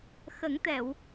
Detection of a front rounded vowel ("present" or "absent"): absent